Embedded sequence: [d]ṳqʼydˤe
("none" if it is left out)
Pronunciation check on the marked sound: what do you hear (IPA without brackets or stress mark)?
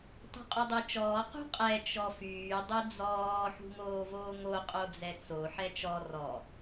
tˤ